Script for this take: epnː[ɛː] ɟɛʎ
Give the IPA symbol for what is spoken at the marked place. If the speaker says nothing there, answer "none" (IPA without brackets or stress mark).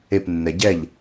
ɛ